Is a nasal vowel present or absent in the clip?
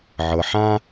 present